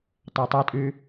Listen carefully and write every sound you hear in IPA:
tˤatˤɐtʼʉ

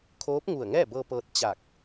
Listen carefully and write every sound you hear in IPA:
kʰoː˧˥p̚ŋu˧˩ə̯ŋɛː˥˨bɤː˧ pɤː˧t̚t͡ɕa˧˩k̚

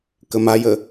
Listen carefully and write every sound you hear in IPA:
kəmajə

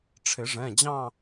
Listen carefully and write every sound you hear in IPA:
ʈ͡ʂʰɪ˨˩˦ʐɛ̃˩˧˩d͡ʑɑ̃˥˧

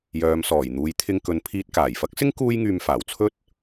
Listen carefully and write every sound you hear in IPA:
jœː˨˧m sɔː˨˩jn̪uː˨˧j t̪ʰɪ˧ŋkɵ˨˧n pʰiː˧t̚kaː˨˩j fɐ˥k̚sɪ˥ŋ kuː˥jŋyː˧mfaː˨˩w t͡sʰɵ˥t̚

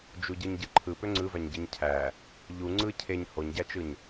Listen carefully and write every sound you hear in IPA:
d͡ʒuɟɯɲɟɯǃʰɯ pøŋ͡ǀɯvæɲɟɯɲ cʰæ | ʎu ŋ͡ǀɯ cʰeɲ hoɲɟæt͡ʃɯɲ

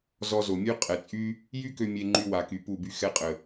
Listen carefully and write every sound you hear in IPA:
zɔ˧zo˨mʲø˦ qʼɛ˨t͡sʼy˦ | jy˦kø˧ mʲe˧ŋ͡ǃy˧wa˨ky˨ pu˦˨by˦ xɛ˧qʼə˨

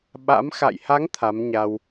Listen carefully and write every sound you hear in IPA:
ɓa̰˧˥m xa̰˧˨jha˨˦ŋ t̪ʰa˨˦mɲa˧w

